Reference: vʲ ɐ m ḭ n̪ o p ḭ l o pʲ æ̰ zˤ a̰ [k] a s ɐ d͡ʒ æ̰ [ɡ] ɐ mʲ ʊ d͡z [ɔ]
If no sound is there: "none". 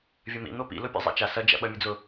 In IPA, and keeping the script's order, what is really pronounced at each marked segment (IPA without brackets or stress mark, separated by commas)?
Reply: t͡ʃ, ɓ, ʊ